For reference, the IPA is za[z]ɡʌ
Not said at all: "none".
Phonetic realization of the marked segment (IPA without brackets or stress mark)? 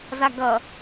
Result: none